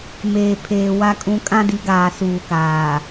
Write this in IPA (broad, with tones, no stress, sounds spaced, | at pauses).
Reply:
m eː˨ pʰ eː˨ w a˨ kʼ ũ˨ kʼ ã˦ d i˨˦ ɡ aː˨ s uː˨ k aː˨